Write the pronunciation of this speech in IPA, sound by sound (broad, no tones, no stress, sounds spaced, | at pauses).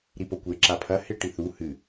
ɾ i p o kʷ e ǁ a pʰ ɐ h e ʈ i θ u h ɨ